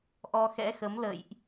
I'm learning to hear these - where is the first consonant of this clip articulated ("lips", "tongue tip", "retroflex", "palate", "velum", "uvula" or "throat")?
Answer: throat